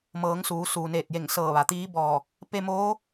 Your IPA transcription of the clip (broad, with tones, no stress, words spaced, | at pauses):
mɤː˩˧ŋ suː˩˧suː˩neː˧˩t̚je˧˩ŋ sɤː˧˩ʋa˩t̪iː˧˥bɔː˧˩ | pe˧moː˧˥